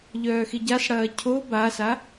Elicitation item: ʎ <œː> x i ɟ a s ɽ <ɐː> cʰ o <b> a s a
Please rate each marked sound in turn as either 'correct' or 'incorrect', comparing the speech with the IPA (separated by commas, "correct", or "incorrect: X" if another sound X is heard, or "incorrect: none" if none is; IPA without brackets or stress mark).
correct, correct, correct